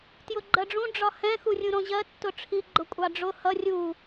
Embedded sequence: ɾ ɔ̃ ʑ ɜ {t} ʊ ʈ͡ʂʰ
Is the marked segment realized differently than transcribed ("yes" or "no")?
yes